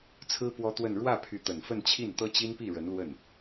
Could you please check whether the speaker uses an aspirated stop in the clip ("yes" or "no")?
yes